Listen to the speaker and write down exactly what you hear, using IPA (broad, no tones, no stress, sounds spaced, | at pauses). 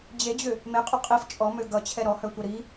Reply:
d͡ʑ e d͡ʑ ʏ | m e qʼ o qʼ i f t͡ʃʼ ɔ m ø ɡ ʌ t͡ɕʰ ɛ ɾ ɔ h œ tʷ ʌ ɾ i